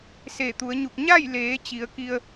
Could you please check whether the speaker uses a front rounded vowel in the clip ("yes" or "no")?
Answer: no